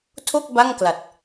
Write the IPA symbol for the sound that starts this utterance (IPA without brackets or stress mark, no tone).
tʰ